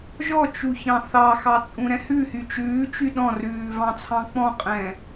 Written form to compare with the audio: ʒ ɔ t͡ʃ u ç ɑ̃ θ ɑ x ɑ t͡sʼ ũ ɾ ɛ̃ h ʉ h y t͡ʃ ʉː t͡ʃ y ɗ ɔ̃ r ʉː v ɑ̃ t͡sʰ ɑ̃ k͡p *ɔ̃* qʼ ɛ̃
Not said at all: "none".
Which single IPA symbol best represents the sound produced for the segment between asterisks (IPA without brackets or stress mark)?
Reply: ɔ̃